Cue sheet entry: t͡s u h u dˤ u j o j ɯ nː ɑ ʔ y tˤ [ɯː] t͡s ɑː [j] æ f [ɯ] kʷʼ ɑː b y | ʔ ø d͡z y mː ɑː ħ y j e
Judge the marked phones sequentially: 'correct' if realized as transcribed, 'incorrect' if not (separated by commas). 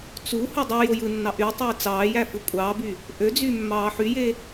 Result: correct, correct, correct